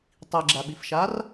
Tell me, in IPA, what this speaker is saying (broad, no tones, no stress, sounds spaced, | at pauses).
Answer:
tˤ i ɡ͡ǁ a ɓ i f ʃ a r